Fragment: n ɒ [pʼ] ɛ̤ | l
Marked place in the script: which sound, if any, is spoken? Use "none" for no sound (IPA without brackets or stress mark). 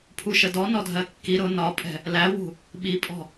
pʼ